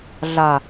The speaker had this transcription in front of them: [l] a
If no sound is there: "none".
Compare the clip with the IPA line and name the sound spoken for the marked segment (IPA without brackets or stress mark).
ɮ